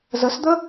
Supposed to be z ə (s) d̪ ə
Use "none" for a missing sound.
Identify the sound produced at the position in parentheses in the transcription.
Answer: s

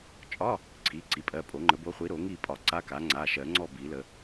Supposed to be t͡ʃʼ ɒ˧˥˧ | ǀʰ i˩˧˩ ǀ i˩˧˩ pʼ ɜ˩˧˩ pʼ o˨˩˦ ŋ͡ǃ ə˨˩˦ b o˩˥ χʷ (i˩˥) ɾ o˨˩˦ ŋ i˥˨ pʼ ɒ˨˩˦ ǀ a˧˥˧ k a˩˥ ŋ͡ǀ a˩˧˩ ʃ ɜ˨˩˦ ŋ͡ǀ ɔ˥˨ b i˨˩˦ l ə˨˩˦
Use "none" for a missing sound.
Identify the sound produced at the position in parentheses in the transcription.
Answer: i˩˥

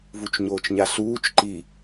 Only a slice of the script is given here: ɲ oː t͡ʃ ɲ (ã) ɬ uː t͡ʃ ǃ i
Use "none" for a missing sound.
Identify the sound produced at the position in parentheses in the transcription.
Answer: a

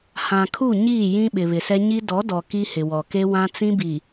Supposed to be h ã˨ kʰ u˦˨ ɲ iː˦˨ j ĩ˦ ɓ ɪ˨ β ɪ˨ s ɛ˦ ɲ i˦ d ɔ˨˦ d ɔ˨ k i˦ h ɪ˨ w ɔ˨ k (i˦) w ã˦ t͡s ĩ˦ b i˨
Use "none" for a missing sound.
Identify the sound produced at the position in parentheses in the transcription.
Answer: e˦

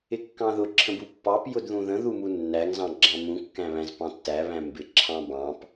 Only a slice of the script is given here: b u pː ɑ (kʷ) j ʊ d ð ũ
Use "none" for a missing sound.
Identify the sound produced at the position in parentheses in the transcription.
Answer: p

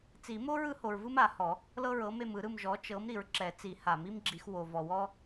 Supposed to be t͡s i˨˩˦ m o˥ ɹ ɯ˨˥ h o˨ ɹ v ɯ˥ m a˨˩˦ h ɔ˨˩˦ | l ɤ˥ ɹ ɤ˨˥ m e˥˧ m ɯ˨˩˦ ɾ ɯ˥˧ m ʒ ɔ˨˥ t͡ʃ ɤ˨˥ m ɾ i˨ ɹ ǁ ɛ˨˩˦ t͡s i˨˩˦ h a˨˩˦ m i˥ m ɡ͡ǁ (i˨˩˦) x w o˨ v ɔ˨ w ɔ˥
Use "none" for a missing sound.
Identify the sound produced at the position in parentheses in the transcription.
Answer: i˨˩˦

